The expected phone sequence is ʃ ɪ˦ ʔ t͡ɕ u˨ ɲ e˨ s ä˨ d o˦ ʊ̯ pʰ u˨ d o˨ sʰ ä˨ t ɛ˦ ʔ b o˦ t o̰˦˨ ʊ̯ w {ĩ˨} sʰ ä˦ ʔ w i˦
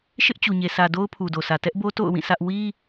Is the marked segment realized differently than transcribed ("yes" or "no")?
yes